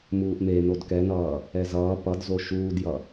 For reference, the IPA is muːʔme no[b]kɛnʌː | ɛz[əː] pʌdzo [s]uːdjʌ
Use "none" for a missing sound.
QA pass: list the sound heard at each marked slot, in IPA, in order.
d, ʌː, ʃ

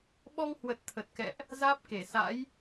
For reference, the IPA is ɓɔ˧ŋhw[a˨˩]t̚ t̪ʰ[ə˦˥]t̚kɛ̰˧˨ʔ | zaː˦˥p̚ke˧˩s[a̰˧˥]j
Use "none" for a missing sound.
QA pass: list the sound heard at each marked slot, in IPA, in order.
ə˨˩, ə˨˩, a̰˧˥

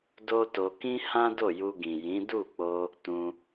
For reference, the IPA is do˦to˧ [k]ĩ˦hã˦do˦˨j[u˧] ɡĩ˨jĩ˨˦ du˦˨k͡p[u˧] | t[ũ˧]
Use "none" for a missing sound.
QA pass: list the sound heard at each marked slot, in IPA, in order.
k, u˧, o˧, ũ˧

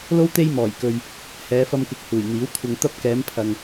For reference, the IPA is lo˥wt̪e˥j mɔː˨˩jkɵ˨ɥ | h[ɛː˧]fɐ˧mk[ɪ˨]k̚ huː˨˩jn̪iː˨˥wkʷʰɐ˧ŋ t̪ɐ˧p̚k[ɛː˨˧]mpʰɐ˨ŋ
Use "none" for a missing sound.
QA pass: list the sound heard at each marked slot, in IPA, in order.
ɛː˨˧, ɪ˨˥, ɛː˨˧

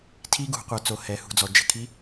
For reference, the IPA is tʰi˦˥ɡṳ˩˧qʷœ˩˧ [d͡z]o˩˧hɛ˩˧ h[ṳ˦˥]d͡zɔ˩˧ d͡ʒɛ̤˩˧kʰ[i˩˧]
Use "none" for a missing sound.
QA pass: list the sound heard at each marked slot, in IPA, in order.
t͡s, ṳ˩˧, i˦˥

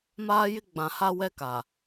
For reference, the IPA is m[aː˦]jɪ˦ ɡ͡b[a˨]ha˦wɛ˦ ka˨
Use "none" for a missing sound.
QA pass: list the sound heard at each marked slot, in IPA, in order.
aː˦, ã˨

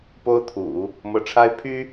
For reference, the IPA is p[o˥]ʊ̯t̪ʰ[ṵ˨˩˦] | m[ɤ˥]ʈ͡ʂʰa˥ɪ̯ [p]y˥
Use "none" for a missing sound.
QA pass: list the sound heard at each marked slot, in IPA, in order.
o˥, ṵ˨˩˦, ɤ˧˥, pʰ

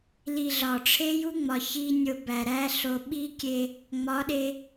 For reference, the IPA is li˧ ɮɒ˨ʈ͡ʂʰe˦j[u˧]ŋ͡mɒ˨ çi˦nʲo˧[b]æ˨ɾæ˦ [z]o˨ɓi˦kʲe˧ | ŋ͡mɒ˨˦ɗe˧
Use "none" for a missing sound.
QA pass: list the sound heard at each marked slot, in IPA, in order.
u˦, b, ɬ

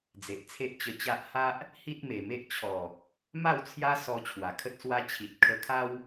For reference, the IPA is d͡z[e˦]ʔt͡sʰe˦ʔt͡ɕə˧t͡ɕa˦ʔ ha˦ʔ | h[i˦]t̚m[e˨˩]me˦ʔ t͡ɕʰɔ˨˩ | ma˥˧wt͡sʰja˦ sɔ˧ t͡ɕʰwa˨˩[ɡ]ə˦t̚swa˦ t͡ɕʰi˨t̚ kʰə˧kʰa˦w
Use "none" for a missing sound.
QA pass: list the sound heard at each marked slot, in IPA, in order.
e˨, i˦, e˨˩, kʰ

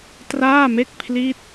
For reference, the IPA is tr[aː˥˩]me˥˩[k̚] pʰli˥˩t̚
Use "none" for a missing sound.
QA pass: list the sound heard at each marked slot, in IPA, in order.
aː˥˩, k̚

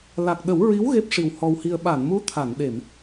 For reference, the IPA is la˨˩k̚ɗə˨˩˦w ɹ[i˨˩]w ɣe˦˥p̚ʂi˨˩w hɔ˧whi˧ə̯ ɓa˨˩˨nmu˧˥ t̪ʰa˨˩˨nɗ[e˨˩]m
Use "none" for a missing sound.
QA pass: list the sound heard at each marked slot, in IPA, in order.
i˧˥, e˨˩˨

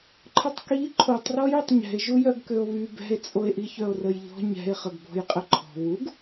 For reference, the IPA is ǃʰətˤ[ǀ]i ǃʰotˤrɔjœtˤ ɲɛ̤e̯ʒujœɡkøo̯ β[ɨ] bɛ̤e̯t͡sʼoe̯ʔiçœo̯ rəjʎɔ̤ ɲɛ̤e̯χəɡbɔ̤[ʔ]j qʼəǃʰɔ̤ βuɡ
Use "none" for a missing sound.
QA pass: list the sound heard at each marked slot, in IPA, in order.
k, y, none

